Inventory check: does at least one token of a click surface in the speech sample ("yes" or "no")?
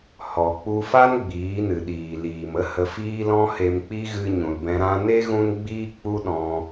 no